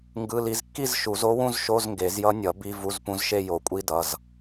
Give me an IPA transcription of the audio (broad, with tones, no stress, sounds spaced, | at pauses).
ŋ ɡ ɯ˧˥˧ l i˧˥ z kː i˥˧ z ʃ u˨˩˦ z o˧˥ w ũ˥˧ z ʃ o˧˥˧ z ŋ ɡ e˨˩˦ z j ʌ˧˥ nʲ ʌ˨˩˦ b i˧˥˧ v u˧˥˧ z p ũ˧˥ z ʃ e˥˧ j o˨˩˦ kʷʼ i˧˥˧ d ʌ˩˧˩ z